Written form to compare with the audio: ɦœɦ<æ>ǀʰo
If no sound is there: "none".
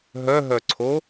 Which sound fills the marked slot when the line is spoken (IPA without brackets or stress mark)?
œ